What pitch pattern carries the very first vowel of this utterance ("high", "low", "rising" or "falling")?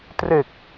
low